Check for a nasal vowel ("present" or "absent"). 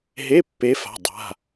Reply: absent